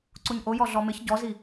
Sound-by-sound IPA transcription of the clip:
ǀ u ɲ ʔ o j ɔ ɮ ɔ m ɪ ç ɟ ɔ z i

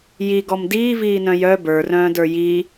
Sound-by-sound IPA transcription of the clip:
j i ɡ ɔ m d iː v iː n œ̃ j œ b ə˞ r œ̃ː d ə˞ j i

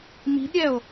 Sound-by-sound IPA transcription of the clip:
m i̤ d ɾʲ ɛ o̯

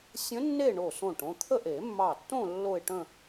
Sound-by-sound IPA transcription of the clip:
sʲ ə̃˧˥ nː e˥˧ ɳ o˧˩ s õ˧˩ ʈ õ˧ t̪ʰ ə˥˧ ʔ e˨˩˦ mː ɑ˧˩ tː õ˥˧ lː o˥˧ ɪ̯ ʈ ə̃˥˧

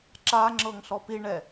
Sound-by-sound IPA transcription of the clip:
ǁ a ŋ͡ǁ ɤ ŋ ɬ ɔ p i ɳ ɛ

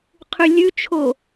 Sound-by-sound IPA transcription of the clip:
qʰ ʉ lʲ ʉ t͡ʃʰ o

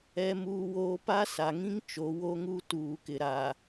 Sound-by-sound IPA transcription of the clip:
ɛ˦ m uː˦ w oː˦ p a˦ s a˨ ŋ ĩ˦ ŋ t͡ʃ o˨˦ w o˦ ŋ u˦ t uː˨ k ɪ˨ ɾ a˨

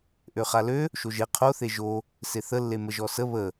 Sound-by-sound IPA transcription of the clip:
ʔ ø χ a l ø | ʃ o ʒ e qʰ o θ e ʒ o | s e θ ə lː e m ə ʒ ɔ s ə β ə

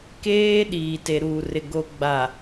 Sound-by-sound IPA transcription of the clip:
k eː˦ ɗ iː˨ t e˨ ɾ uː˨ r ɪ˨ ɡ o˨ ɡ͡b a˨

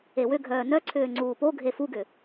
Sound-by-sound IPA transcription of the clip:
e w ʏ ɡʱ œː n œ ǀʰ ʏː ŋ͡ǀ uː p o ɡʱ e f u ɡ ʏ

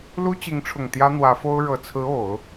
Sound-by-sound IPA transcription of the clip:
l u˥ t͡ɕ i˧˥ ŋ ʈ͡ʂʰ ʊ˨˩ ŋ t̪ j ä˥ n̪ w ä˧˥ f o˥ ʊ̯ ɻ ɤ˨˩ t͡sʰ ɹ̩˧˥ o˨˩˦ ʊ̯

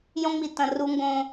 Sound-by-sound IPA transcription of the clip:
j õ˦ ŋ͡m i˨ t ɐ̃˨ r u˦ ŋ ɡ õ˦

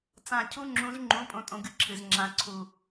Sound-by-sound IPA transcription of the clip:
t͡s ã˦˨ cʰ u˥ ŋ͡ǁ ũ˧˥ z ŋ͡ǃ ũ˧˥ pʼ õ˥ tʼ õ˥ ɡ ɨ˥ ǁʰ ɨ˦˨ z ŋ͡ǁ ã˧˥ ǀʰ u˦˨

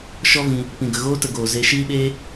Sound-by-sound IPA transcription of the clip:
ʃ ɔ˦ v ĩ˧ | p ĩ˧ ɡ ə˧ ɣ oː˦ t ə˧ ɡ oː˨ z e˧ ʃ iː˦ ɓ eː˦

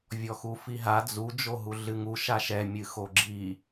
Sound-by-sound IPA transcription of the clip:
vʲ ɔ x u f i ɦ a d͡z u d͡ʒ o ɦ u ɮ ɨ ŋ u ʃ a ʃ ɛ mʲ ɨ x o ɡ͡ǁ i

